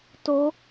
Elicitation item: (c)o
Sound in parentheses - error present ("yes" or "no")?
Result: yes